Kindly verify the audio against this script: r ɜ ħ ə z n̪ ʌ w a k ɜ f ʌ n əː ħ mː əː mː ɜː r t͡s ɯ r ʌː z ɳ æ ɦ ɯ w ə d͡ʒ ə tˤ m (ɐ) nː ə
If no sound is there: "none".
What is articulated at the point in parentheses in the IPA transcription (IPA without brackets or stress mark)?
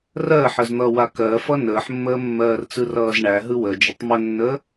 ə